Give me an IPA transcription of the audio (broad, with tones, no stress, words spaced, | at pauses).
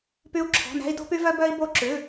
py˥u̯ ǁʰɔ̤˧˥˧næ̤˥i̯ do̤˥py˥vœ˥ bœ˥i̯ bo˥ ǁʉ˧˥˧